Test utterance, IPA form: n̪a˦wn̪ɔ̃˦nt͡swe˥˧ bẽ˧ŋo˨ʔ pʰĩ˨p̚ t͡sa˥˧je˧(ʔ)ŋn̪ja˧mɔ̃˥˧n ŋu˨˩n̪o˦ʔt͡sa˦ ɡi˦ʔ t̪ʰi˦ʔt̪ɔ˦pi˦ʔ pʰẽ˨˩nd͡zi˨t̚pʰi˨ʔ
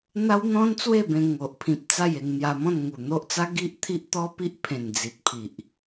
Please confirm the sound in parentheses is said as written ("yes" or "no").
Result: no